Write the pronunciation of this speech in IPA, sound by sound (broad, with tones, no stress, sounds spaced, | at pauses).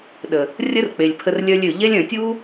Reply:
ɗ ə˨ | rʲ ə˦ r k͡p e˨ lʲ pʰ ə˧ r lʲ œ˧ lʲ ø˨ ʎ ɛ˦ lʲ œ̃˨ tʲ u˦